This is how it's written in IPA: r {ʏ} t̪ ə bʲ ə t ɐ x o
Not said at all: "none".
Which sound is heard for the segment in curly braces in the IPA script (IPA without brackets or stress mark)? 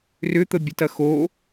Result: ʏ